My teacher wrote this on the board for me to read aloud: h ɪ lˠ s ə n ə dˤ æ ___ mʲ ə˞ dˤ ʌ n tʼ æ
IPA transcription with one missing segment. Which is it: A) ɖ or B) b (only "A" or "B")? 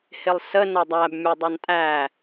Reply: B